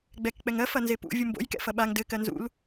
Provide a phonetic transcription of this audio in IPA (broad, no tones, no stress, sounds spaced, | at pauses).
ɡ͡b ɛ k k͡p ɛ ŋ ɜ f ɐ n z e p ṵ vʲ u m b o̰ j k ɛ̰ f ɐ ɓ a ŋ d ɘ k ɜ n z ṵ l